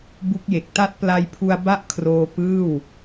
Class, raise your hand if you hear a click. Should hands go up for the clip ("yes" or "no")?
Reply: no